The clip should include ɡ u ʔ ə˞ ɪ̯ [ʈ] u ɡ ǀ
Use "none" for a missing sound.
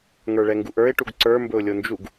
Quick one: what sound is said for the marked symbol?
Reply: ʈ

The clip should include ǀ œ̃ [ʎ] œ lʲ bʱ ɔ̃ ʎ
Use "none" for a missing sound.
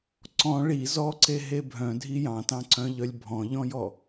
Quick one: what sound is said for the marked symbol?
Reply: ʎ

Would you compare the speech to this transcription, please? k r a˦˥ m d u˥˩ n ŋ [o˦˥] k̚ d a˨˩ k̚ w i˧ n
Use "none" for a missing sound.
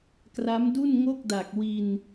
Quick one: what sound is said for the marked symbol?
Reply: o˥˩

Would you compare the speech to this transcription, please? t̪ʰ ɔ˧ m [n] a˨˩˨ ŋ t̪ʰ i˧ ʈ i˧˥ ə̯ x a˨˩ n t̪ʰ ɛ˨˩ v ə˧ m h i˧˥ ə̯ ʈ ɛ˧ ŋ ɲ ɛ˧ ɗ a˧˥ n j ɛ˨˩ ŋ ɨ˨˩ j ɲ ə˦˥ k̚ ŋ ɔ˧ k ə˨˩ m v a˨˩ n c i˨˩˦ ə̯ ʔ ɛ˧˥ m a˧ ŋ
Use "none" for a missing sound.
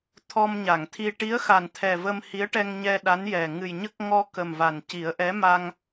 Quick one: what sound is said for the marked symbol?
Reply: ɲ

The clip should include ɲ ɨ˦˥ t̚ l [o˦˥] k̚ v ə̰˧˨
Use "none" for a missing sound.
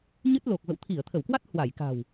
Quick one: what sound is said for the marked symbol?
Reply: o˨˩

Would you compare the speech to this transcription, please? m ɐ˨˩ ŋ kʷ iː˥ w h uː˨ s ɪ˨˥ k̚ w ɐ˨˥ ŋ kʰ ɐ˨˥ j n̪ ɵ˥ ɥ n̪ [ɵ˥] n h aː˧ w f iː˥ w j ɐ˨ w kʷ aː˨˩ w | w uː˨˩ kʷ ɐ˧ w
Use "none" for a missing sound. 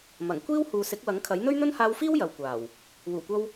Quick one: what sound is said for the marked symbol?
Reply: ɵ˥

